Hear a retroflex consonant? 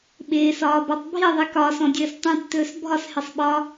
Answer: no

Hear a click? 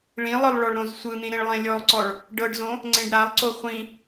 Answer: yes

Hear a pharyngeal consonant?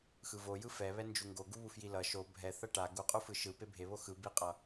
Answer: no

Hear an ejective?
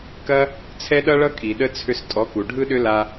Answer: yes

